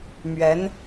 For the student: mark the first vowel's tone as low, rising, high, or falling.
rising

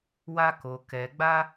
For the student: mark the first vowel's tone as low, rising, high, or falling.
high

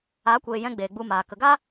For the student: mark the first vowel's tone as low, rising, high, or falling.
rising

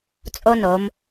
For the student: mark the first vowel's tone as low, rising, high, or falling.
high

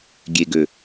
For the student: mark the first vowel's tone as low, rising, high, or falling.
low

